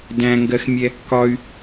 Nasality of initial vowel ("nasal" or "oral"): nasal